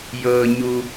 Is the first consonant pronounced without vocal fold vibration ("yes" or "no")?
no